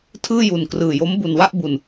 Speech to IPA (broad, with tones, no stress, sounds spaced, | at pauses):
tʰ ɯː˥˩ j u˨˩ n k r ɯː˨˩ j o˦˥ m b u˨˩ n w a˥˩ ʔ b u˨˩ n